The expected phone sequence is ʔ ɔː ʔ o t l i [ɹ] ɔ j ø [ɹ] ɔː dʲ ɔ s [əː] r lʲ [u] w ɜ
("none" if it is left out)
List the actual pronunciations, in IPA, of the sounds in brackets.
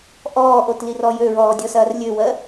r, ɹ, ɐː, ø

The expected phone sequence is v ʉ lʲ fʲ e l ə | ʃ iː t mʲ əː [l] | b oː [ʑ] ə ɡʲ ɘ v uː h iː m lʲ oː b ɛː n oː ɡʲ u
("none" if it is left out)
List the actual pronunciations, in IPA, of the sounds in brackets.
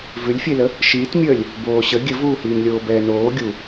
lʲ, ɕ

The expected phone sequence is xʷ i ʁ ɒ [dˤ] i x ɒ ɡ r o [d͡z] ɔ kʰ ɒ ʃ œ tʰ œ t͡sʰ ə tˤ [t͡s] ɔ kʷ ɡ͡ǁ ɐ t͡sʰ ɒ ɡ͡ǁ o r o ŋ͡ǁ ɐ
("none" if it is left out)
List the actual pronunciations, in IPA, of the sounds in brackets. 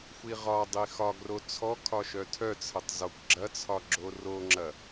dˤ, t͡sʰ, z

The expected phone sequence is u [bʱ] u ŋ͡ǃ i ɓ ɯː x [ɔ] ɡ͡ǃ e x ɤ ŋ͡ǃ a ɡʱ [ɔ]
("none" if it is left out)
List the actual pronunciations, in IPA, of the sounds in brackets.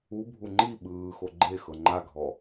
bʱ, o, ɔ

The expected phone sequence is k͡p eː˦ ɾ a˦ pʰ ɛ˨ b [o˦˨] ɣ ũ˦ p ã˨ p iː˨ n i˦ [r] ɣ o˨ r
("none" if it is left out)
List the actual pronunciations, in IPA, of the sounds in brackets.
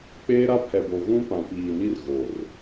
o˨, r

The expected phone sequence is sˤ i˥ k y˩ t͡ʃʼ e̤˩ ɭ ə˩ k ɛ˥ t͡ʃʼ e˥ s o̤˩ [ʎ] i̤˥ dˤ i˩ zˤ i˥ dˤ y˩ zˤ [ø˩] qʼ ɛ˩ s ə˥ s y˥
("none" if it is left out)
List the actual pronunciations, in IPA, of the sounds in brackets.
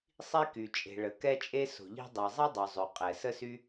ʎ, ø˩

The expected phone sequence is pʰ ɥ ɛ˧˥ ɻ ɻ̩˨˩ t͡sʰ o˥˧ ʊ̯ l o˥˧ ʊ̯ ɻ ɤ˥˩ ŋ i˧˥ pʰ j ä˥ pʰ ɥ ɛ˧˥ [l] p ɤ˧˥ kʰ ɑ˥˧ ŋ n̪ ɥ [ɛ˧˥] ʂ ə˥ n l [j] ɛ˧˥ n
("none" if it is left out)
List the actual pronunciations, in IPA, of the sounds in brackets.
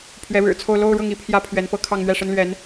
n, ɛ˥˩, ɥ

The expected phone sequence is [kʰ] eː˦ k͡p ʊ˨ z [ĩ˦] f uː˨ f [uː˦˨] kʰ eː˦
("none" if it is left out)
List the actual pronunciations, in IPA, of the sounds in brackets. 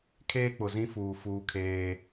kʰ, ĩ˦, uː˦

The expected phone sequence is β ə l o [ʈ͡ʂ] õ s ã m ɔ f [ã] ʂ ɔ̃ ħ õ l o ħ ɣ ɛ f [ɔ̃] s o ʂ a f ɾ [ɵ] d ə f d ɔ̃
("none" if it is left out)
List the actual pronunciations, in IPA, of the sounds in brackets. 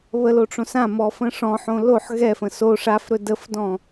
ʈ͡ʂ, ə̃, ə̃, ɵ

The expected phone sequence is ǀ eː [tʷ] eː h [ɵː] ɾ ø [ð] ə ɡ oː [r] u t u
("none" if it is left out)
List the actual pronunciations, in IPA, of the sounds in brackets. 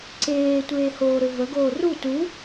tʷ, oː, v, r

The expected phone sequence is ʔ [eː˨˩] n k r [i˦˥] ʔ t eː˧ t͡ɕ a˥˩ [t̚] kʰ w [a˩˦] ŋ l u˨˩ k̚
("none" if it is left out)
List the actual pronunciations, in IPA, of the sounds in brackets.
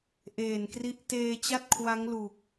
eː˨˩, i˦˥, t̚, a˦˥

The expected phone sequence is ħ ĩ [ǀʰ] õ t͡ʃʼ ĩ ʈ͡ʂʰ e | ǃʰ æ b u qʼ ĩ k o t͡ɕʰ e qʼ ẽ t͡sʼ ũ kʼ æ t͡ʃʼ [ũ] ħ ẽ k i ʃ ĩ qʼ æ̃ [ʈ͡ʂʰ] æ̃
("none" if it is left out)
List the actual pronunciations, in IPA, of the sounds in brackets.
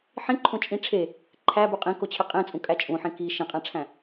ǃʰ, ũ, ʈ͡ʂʰ

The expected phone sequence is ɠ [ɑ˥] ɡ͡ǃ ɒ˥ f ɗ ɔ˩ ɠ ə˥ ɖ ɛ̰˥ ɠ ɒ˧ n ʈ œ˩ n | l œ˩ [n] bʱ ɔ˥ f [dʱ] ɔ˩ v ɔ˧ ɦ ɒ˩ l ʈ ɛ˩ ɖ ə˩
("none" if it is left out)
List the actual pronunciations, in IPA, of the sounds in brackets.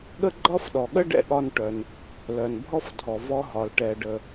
ə˥, n, dʱ

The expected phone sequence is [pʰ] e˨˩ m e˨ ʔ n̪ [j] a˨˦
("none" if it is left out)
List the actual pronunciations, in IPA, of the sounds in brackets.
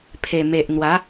pʰ, w

